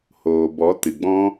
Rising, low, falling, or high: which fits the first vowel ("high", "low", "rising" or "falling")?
low